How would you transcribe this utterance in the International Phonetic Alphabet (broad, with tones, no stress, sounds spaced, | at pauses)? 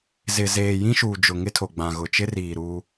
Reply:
z ɪ˨ z eː˨ j ĩ˦ ʃ uː˨ d͡ʒ ʊ˨ ŋ ɪ˦ tʰ o˨ ɡ͡b ã˨ ɣ ʊ˨ t͡ʃ ɪ˦ r iː˨ ɾ uː˦